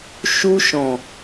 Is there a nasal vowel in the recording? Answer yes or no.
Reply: yes